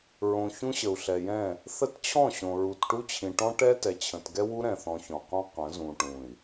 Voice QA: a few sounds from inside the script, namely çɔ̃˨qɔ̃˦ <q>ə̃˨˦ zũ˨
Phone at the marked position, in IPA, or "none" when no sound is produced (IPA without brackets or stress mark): q